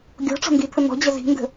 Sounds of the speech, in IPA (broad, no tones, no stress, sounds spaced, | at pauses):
ɡʲ ɔ̤ ʈ͡ʂ ɔ̤ n d i t̪ʰ ə n̪ ɔ̤ d͡ʑ ʌ z i̤ n d ə̤